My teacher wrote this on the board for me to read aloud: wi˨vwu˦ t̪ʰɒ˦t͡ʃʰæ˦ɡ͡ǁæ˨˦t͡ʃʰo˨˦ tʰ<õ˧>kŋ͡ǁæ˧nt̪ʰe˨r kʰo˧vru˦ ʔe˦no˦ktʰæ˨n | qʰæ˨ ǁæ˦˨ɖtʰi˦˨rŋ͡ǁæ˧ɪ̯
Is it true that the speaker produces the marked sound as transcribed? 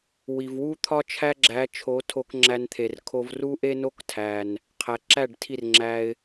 no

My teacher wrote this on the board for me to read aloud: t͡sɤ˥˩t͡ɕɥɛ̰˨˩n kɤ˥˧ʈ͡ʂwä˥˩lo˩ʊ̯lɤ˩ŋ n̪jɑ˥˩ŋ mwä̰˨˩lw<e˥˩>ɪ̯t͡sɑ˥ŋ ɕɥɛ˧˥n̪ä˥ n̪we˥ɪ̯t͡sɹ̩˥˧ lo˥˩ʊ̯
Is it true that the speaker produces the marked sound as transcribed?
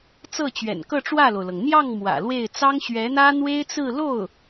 yes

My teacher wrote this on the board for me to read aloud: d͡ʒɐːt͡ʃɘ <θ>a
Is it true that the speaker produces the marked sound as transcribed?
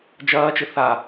yes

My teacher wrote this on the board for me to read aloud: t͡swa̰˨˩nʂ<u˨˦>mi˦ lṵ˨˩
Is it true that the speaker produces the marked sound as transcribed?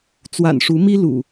yes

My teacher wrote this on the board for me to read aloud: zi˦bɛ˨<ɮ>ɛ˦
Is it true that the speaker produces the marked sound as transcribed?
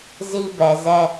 no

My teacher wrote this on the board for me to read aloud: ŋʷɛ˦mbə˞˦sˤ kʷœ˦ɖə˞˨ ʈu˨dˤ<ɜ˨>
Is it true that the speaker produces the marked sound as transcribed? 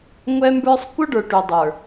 no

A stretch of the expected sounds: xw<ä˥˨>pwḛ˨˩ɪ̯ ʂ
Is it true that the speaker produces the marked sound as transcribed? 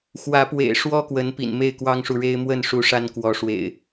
no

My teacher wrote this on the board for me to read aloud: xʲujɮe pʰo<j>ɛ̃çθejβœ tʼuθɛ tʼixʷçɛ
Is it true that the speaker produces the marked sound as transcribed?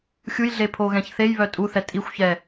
no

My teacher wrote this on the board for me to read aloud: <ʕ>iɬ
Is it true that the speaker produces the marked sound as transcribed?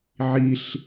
yes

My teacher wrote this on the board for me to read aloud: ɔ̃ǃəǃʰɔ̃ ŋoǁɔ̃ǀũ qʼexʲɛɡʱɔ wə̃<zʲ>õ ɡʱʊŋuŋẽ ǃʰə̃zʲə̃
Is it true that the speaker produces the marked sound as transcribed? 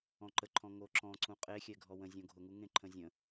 yes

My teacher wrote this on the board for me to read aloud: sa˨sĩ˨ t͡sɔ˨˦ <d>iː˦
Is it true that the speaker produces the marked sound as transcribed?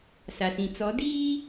yes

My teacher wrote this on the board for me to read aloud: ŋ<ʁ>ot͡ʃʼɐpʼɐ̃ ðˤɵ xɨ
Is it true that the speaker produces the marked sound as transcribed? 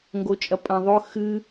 no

